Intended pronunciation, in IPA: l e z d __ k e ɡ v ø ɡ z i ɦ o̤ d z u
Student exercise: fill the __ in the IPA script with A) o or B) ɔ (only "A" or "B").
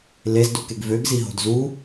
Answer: A